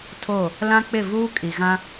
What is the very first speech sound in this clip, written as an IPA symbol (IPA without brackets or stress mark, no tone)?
tʰ